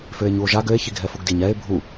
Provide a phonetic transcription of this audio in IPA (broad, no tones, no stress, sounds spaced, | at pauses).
f ø e̯ ɲ u o̯ ʒ a ɡ ø e̯ ç i ɡʱ ɛ f u ɡ d i ɲ ɛ e̯ bʱ u